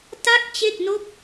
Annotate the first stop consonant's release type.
plain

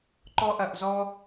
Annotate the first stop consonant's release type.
click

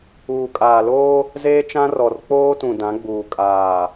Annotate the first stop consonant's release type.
ejective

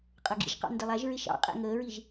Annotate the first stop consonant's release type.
ejective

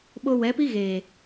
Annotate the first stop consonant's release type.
implosive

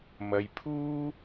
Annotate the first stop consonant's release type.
aspirated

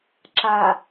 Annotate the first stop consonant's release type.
click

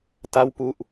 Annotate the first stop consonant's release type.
plain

